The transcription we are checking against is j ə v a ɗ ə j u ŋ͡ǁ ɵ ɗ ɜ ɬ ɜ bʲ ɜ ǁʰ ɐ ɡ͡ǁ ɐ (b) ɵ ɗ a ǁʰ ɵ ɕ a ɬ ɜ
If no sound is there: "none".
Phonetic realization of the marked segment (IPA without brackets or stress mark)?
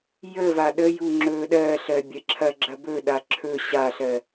b